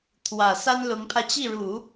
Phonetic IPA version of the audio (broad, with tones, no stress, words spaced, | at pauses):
t̪ʰwä˨˩ sa˥nlʊ˧˥ŋpʰä˧ t͡ɕi˥˩ɻu˨˩˦